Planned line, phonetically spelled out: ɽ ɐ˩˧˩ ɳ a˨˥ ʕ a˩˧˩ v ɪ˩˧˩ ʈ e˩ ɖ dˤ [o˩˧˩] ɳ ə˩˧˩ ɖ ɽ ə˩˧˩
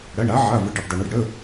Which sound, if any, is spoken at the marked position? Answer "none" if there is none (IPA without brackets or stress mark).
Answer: o˩